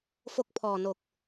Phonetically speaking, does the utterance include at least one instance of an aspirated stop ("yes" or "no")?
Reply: yes